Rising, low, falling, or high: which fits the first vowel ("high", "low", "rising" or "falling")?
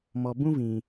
low